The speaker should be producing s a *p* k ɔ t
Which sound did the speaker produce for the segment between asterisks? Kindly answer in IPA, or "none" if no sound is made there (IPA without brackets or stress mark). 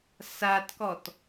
t